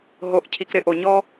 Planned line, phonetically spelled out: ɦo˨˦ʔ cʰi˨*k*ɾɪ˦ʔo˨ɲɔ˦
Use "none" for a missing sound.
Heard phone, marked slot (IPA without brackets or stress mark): k